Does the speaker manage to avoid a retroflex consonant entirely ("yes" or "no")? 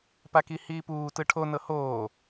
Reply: no